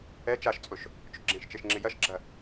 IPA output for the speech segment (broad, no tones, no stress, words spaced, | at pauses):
ɛ t͡ʃaʃt͡sʼʊʃ | t͡ʃʊɡ͡ǁẽʃt͡ʃeʃ ŋ͡ǁɪjɐʃɡ͡ǁɐ